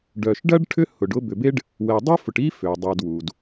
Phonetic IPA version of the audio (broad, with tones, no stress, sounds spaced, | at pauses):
ɖ œ˨ ʃ ɖ ɐ˥ ɖ ʈʰ ʏ˥ h ʊ˨ ɖ ʊ˦ b ʏ˨ b e˦ ɖ | w ɛ˨ dˤ œ˥ f ʊ˨ ʈ i˥ f ø˩ dˤ ɛ˨ d w u˩ d